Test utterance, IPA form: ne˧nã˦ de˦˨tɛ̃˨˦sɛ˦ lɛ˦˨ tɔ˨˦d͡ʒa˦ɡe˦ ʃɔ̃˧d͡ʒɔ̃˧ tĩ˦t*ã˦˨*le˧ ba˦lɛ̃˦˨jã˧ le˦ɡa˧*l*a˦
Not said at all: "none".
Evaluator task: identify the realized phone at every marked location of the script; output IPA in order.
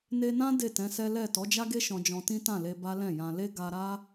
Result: ã˦˨, ɾ

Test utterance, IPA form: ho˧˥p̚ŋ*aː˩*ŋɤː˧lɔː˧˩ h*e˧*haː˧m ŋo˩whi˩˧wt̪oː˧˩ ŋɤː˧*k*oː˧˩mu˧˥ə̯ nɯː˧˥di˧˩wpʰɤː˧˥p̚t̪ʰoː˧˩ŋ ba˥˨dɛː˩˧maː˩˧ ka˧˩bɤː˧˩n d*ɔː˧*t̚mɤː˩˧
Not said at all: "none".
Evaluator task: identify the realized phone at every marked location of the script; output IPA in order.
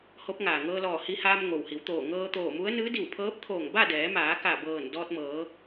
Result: aː˩, i˧, t̪, ɔː˧

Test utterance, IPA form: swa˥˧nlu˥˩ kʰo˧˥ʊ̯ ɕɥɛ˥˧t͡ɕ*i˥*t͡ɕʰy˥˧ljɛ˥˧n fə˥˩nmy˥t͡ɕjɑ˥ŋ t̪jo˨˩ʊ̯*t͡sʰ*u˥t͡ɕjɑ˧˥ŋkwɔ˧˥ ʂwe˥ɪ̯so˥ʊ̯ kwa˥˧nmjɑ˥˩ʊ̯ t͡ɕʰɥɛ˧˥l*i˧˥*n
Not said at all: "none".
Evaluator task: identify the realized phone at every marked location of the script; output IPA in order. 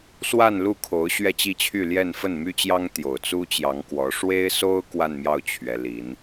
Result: i˥˧, t͡s, i˧˥

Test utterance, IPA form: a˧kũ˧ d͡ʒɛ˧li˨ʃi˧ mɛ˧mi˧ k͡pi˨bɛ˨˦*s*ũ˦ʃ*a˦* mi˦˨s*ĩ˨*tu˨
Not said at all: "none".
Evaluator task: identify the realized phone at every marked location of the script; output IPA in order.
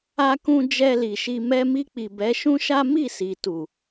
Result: ʃ, a˦, i˨

